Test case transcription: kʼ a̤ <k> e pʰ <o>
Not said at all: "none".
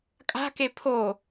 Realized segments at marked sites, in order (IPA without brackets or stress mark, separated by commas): k, o